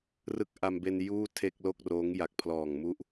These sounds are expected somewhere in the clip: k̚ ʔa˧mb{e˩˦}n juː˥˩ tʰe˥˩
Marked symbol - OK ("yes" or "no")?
no